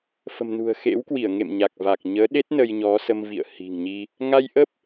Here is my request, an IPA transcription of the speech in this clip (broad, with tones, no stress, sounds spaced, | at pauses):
f ə̤˨˩ m n ṳ˨˩ ə̯ x ḛ˧˥ w k w i˧˩ ə̯ ŋ ḛ˧˨ m ɲ a˨˩ k̚ v a˨˩ k̚ ɲ əː˨˦ ɗ e˦˥ t̚ n ə˧ j ɲ ɔ˨˦ s ə˧ m v ḭ˧˨ ə̯ h i̤˨˩ ŋ ɲ i˧ | ŋ a˧ j ʔ ə˦˥ p̚